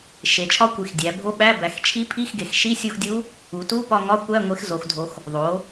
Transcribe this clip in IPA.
ʃ e˩˧ t͡ʃʰ ɒ˧˥ kʷ i˩˧ x dʲ æ˩˧ bʱ o˧˥˧ ɓ æ˧˥˧ b æ˩˧ x t͡ʃʰ i˧˥ pʰ i˧˥˧ x ɡ e˩˧ x ʃ i˧˥˧ sʲ u˦˨ x dʲ u˧˥ | u˩˧ t u˧˥˧ p ɒ˦˨ ŋ ɒ˧˥˧ kʷ æ˧˥˧ ŋʷ e˧˥ x z o˩˧ x dʱ o˩˧ x | ðˤ o˩˧

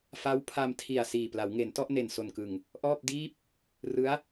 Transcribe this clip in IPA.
f a˦˥ w pʰ a˧ m tʰ i˨˩ a̯ s iː˨˩ p l a˩˦ w ŋ e˩˦ n t ɔ˥˩ ʔ n e˨˩ n s o˨˩ n k ɯ˨˩ ŋ | ʔ ɔː˥˩ p̚ d iː˥˩ p̚ | r ɯ˦˥ a̯

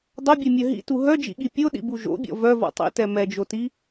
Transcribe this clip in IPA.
dˤ o bʲ ɛ mʲ œ ɦ ḭ t u ɦ œ d͡ʒ ḭ ɠ i pʲ o ɗ ḭ b u ʒ o̰ bʲ ɔ̰ v œ v ɔ̰ tˤ ḭ t ɛ m ɛ d͡ʒ o t i

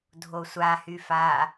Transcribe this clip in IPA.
dʱ o sʷ a h y f a

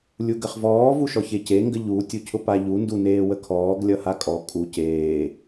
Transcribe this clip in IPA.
lʲ u ɡ ə χ v ɔː v u ʃ ɔ ç e c e ŋ ɡ ə ʎ u tʲ u cʰ ʊ p a ʎ u n d u n eː w ə kʰ ɔː ɡ lʲ ʌ h a kʼ ɔ kʼ u c eː

